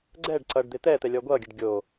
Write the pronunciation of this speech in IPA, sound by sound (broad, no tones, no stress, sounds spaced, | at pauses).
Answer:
ɡ͡ǀ ɛ ɖ ǀ ʌ ɖ d̪ e t̪ ɛː t̪ ɛ lʲ ɔ ɡʷ ʌː ɡʲ ɛ ɖ ɡʲ o